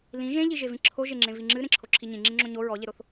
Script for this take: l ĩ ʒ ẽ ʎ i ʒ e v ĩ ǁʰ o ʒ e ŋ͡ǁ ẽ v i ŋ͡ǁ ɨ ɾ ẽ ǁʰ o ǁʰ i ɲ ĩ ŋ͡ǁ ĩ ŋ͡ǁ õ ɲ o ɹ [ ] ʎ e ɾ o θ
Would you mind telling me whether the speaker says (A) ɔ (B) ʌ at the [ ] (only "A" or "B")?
A